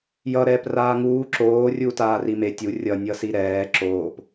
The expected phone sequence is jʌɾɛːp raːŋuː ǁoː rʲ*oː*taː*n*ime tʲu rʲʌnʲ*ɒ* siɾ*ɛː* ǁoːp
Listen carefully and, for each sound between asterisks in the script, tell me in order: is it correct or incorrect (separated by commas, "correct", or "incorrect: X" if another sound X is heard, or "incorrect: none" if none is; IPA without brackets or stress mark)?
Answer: incorrect: uː, incorrect: r, incorrect: ʌ, correct